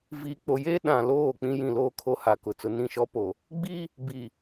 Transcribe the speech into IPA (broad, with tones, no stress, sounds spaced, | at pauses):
v iː˨ k͡p o˨ j e˦ ɗ ã˨ l oː˦˨ k͡p ĩ˦ j ĩ˨ l oː˦ kʰ o˦ h a˨ k ʊ˨ t͡s ʊ˨ n ĩ˦˨ ʃ ɔ˦ p o˨ | ɡ͡b i˦ | b i˨